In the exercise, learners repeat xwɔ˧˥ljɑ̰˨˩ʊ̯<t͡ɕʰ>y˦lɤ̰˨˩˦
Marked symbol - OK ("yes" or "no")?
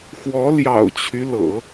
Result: yes